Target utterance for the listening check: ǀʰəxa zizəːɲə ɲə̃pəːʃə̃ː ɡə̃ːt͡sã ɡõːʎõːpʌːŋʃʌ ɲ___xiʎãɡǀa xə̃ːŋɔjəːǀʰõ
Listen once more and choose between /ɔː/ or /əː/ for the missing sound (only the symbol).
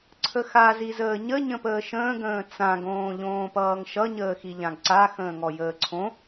əː